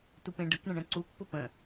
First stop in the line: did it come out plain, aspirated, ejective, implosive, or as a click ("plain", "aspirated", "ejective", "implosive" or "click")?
plain